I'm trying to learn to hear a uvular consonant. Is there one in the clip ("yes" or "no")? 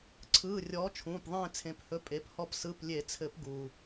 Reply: no